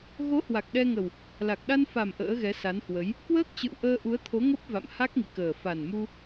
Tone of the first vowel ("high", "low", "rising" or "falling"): rising